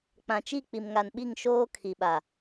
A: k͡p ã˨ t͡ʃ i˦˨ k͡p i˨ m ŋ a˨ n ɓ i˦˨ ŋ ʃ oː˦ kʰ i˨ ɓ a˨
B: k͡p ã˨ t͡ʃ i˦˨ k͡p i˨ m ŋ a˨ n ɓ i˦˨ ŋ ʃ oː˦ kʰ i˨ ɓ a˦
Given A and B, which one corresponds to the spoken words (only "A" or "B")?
A